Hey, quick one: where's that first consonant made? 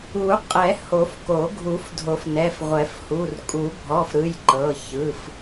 uvula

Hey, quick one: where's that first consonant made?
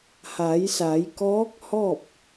throat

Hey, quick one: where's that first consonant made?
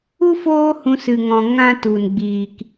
lips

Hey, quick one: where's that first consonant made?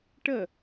retroflex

